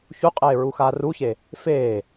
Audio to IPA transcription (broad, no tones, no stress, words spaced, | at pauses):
çuqʼeː ɹuxaːruçe | feː